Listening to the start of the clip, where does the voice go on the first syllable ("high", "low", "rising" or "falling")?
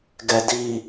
low